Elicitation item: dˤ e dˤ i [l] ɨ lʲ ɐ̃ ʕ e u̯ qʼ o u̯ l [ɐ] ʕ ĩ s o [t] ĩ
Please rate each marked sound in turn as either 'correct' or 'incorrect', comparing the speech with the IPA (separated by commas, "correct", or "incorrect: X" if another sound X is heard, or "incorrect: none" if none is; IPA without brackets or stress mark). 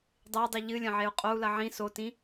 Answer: incorrect: ʎ, correct, correct